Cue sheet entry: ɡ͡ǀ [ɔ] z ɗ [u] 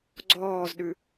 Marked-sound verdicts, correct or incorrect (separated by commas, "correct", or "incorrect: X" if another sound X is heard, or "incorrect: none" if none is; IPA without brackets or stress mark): incorrect: ɔː, incorrect: ʉ